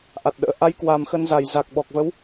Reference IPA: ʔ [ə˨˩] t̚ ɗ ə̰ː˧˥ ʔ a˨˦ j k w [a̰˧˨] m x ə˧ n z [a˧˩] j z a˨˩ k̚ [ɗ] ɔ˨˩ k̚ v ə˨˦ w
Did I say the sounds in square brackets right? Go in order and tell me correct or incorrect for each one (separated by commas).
incorrect, incorrect, correct, incorrect